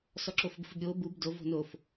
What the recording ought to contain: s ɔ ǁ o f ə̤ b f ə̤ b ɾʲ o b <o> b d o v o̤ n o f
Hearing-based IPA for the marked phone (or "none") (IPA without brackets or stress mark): u